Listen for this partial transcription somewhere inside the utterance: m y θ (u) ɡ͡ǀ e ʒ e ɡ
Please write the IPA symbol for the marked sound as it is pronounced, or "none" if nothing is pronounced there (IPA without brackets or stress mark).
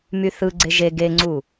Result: ɯ